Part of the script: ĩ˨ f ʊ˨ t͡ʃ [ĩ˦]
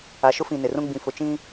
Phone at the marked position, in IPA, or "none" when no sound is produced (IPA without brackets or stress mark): ĩ˦